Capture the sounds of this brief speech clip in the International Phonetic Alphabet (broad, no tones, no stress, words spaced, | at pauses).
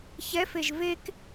çɛfeʒ vek